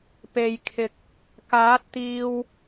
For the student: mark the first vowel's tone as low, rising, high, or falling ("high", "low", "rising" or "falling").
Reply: low